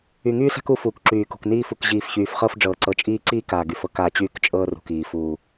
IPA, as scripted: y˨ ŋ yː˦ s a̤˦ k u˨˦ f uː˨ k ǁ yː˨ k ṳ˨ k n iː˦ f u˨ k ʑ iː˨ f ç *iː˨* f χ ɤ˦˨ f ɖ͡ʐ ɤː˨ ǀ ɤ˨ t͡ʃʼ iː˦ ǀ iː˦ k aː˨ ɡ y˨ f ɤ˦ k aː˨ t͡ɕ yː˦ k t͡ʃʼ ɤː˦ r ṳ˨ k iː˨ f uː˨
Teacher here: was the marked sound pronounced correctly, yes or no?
no